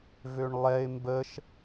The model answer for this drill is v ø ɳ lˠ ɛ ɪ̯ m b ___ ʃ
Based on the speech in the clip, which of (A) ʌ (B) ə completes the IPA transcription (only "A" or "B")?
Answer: B